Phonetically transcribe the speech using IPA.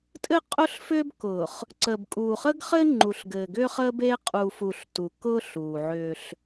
tʼɘ˦qʼʊː˦ɬfʏː˦bkʊː˨χ | ǀəː˨bkʼuː˨χəː˦ɡχɘː˦ ŋ͡ǃu˨ɬɡɘː˨ɡʏː˦χəː˦b e˦ qʼuː˨fu˨ɬ tu˨kʊː˦ ɬuː˨ʕʏː˦ɬ

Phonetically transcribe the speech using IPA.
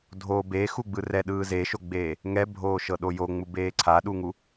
dʱo bexuɡ͡bɯ rɛɗɯː zeʃoɡ͡beː | ŋɛbʱoːʃɤɗo joŋ͡mubeː ǀʰaɗuŋu

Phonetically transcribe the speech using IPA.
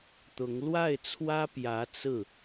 t̪ʊ˧˥ŋ lwa˥˩ɪ̯t͡sʰwä˥pjä˧˥ t͡sɹ̩˥˩

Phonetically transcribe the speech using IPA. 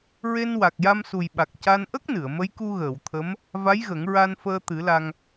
ɹe˧n wa˨˩k̚ja˧msu˨˩jɓa˨˩k̚ ca˧nʔə˦˥k̚nɨ˨˩˨ə̯ mə˧˥jku˧ɣəː˨˩˨wt̪ʰə˧˥m | va˧˥jɣə˨˩˦ŋ ɹa˧nfəː˧ t̪ɨ˨˩˦la˧ŋ

